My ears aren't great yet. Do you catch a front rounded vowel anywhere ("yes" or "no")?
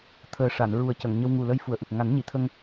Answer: no